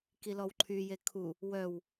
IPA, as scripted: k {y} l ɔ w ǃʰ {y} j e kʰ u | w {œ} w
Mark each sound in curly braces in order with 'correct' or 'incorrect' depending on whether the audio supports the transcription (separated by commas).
incorrect, correct, correct